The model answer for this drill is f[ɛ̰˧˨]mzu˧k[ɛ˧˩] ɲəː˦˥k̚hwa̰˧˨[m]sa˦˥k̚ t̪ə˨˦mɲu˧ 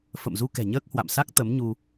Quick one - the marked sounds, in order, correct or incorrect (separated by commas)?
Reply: incorrect, incorrect, correct